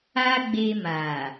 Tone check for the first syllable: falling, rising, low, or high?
high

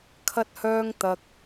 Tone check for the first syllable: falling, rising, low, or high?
high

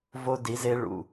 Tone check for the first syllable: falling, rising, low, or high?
high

